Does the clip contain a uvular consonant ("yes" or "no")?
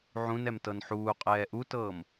yes